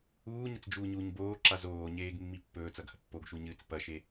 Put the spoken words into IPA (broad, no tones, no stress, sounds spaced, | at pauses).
uː ɲ ɐ t͡s d͡ʒ uː ɲ uː ɲ b oː ǁ a z oː ɲ eː ɡ mː i pː ɵː t͡s ɐ ɡ h ɐ pː o ɡ ʃ u ɲ ɨː t͡s p ɐ ʃ e